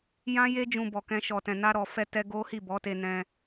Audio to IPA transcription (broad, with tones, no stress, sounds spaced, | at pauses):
j ã˦ j e˦ d͡ʒ ũ˧ b ɔ˨ k ɛ̃˧ ʃ ɔ˨ t ɛ̃˨ n a˧ ɾ ɔ˨ f ɛ˧ t ɛ˧ ɡ o˦ h i˦˨ b ɔ˨˦ t e˧ n ɛ̃˧